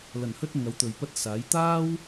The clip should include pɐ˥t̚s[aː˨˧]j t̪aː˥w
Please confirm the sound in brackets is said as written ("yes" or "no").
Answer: no